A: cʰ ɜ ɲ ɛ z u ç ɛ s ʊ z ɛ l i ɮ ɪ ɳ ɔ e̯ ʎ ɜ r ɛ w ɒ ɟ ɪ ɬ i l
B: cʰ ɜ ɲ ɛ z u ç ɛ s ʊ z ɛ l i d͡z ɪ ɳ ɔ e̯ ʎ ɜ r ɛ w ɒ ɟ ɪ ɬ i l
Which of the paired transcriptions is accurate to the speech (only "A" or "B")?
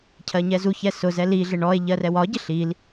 A